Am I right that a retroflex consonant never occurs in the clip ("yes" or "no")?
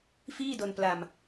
yes